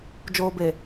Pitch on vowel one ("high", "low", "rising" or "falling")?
low